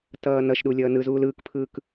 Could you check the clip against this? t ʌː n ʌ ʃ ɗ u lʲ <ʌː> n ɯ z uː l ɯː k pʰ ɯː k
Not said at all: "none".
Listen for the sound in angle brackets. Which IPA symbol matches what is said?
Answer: ʌː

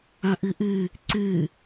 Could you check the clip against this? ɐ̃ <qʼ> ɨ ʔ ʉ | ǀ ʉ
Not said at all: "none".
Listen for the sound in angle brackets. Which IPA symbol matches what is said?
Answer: ʔ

